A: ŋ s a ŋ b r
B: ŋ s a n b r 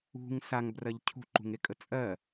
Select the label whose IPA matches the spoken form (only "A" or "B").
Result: A